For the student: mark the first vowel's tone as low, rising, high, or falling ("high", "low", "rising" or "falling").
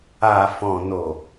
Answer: low